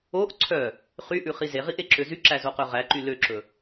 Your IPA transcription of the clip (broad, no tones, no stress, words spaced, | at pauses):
oʔ ǀʰœ | χyʔʉχi zeʁiʔeǁø zyǁæzoqø ʁæǃy løǁɵ